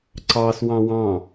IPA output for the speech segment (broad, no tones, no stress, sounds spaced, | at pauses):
ǀ ɑ s w ɑ̃ w ɑ̃